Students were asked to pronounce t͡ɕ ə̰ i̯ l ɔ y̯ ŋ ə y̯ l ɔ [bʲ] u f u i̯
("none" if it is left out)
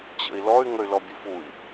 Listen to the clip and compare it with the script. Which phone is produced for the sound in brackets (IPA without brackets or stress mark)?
bʲ